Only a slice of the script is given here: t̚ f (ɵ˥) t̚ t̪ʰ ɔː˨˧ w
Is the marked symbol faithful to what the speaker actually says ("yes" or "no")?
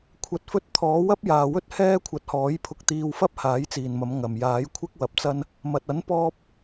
yes